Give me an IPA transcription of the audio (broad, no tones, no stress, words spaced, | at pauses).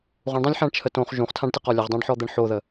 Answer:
ʁũɳdˤãlʲ ħãɳt͡ʃʰətõχ ʒũχtʰãɖtɪqɔ lʲəʁdˤãɖħɔ d̪ɛɳħoðə